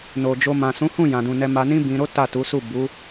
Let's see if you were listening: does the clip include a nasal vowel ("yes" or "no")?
yes